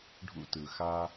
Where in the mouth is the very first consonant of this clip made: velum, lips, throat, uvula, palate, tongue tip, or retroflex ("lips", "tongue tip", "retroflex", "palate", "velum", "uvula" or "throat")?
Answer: retroflex